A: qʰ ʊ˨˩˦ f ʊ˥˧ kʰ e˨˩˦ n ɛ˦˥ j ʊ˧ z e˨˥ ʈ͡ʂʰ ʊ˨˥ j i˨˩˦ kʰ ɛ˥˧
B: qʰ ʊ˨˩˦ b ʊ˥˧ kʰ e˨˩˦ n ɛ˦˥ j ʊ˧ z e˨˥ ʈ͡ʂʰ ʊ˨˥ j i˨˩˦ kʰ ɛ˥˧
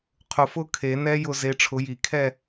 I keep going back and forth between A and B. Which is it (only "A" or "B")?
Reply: A